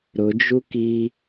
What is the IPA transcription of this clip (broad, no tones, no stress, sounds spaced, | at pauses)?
ɾ ʊ d͡ʒ u k i